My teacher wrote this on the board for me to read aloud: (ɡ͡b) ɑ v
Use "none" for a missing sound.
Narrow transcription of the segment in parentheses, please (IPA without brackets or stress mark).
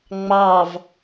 ŋ͡m